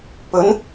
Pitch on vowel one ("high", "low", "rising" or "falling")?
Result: rising